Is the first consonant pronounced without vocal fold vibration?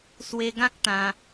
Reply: yes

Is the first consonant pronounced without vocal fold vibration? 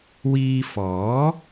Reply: no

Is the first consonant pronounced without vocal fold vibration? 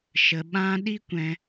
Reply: yes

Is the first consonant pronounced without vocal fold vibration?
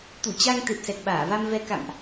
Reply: yes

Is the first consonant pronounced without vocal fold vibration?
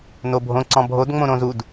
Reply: no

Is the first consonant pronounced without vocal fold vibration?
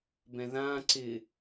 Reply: no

